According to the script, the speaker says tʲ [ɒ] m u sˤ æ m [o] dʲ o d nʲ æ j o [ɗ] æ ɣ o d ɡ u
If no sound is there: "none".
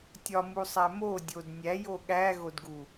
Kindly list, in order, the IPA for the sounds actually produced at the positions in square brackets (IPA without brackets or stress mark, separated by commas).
ɒ, o, ɠ